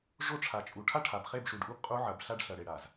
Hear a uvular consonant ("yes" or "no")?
yes